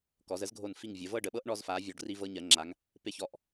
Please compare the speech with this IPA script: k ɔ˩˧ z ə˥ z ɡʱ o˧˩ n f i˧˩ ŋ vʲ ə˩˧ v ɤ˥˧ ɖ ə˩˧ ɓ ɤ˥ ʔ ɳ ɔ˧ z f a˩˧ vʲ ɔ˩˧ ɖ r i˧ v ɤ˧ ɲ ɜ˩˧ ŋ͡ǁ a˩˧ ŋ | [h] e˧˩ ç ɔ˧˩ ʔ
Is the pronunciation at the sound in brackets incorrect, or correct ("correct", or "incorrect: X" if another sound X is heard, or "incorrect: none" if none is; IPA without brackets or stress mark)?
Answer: incorrect: p